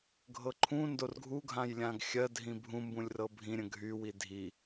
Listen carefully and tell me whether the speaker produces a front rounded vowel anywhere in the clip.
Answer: yes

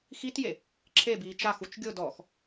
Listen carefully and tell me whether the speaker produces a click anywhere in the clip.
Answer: yes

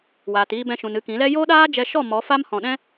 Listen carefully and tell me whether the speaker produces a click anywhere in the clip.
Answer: no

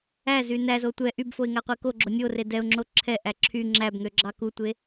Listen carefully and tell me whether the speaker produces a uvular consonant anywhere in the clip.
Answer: yes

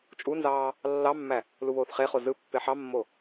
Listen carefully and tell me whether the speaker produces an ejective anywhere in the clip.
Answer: yes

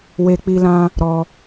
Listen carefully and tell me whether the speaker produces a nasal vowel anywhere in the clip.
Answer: yes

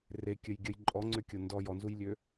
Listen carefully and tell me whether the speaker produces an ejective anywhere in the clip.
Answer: yes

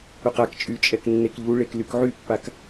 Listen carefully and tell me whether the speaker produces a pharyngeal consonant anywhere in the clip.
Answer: yes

